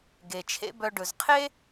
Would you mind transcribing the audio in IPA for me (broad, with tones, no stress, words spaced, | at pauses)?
ɡe˨t͡ʃʰḛ˦bœ˧ ɖɵ˨zqʰe˦